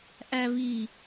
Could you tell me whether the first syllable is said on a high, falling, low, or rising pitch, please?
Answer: low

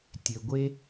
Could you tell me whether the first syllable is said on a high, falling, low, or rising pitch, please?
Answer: low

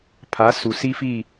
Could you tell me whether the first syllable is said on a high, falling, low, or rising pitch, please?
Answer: rising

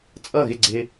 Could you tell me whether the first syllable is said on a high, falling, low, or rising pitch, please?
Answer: falling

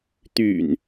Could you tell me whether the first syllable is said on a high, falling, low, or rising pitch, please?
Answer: low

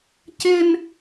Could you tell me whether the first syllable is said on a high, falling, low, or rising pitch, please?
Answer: high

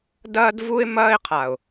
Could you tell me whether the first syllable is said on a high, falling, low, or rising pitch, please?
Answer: high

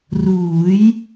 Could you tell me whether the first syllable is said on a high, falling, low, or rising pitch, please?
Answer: rising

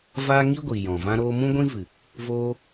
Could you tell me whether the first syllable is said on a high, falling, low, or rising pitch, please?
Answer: high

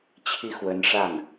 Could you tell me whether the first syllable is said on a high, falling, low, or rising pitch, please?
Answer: falling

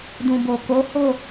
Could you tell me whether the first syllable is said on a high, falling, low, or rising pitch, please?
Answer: low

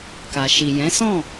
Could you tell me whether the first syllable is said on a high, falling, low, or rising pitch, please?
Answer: low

